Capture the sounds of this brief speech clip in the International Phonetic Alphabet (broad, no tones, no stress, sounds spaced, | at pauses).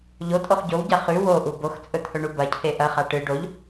ʎ o tʼ o χ ɟ o w ɟ a χ ʉ w o ʔ u b o x t͡sʼ ɵ t̪ʰ ɵ ɳ u b ɐ cʰ e ʔ ɐ χ a ʈ ɨ ɖ o ʎ